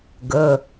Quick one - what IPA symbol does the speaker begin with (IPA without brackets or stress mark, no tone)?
ɡ